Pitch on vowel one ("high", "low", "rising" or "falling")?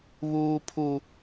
high